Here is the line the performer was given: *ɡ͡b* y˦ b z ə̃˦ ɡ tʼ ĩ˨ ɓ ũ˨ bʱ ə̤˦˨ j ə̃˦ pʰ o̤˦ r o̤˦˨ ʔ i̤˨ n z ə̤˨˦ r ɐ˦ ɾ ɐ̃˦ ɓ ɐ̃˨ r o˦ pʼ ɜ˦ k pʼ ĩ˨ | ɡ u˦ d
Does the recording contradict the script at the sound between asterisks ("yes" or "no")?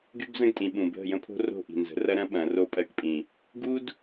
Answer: yes